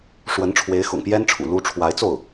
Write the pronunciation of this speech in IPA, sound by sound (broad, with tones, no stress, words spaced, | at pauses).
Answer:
ʂwə˧˥nʈ͡ʂʰwe˧˥ɪ̯xʊ̰˨˩ŋpjɛ˥n ʈ͡ʂʰṵ˨˩ lu˥ ʈ͡ʂʰwa˧˥ɪ̯t͡so˥˩ʊ̯